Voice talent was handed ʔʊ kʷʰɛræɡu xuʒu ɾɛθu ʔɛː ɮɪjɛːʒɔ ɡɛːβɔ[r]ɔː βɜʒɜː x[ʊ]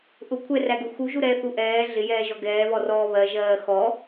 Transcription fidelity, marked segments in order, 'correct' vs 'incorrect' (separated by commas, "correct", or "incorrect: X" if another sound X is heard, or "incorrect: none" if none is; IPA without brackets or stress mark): correct, incorrect: ɔ